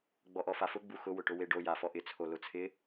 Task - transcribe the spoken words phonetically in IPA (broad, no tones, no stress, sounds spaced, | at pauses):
ɡ͡b ɔ ʔ ɔ f a f ʊ ɡ͡b u x ʊ w ʊ ʈ ʊ w e ɖ o j a f ɔ ʔ ɪ t͡sʰ o l ʊ t͡sʰ ɪ